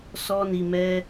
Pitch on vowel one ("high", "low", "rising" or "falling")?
high